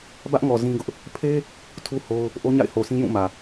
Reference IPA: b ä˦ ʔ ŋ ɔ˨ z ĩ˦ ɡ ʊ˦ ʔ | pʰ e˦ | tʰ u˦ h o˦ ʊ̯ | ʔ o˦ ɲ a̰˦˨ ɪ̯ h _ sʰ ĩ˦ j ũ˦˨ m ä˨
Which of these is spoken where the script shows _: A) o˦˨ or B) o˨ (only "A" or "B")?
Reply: B